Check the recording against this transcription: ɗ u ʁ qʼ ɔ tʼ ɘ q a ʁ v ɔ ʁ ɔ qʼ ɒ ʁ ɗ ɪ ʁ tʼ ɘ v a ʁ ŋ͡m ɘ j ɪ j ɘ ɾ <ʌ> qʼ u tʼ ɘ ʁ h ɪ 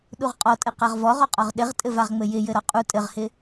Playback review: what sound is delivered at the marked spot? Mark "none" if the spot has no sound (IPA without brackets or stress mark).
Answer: ɒ